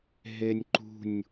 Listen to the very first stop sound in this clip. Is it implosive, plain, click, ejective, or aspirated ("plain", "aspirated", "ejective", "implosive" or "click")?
click